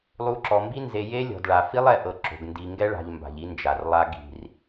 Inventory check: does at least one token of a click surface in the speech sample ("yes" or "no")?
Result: yes